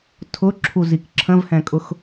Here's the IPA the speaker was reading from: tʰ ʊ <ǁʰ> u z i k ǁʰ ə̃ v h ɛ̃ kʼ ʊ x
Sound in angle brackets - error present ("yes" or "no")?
no